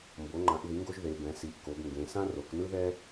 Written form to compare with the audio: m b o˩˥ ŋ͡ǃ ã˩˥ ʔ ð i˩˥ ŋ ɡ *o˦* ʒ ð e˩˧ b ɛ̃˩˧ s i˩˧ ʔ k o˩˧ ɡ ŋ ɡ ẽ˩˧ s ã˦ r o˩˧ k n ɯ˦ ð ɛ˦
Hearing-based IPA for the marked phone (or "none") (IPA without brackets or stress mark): o˦